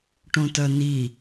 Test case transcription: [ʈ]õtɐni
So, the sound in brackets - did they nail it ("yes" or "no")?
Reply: yes